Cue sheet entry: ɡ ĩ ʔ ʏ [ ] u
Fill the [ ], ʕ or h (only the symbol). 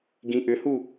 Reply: h